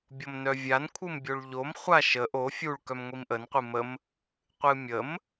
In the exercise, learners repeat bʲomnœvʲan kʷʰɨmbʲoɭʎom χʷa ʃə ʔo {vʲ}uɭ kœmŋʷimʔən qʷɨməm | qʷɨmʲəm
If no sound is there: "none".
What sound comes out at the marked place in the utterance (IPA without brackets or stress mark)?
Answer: fʲ